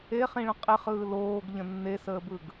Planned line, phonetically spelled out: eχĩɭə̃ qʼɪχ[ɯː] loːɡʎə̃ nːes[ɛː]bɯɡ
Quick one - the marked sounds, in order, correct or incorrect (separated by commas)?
correct, incorrect